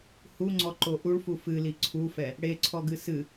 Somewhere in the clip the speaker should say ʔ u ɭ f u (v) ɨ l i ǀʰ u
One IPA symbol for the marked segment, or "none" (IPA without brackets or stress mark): f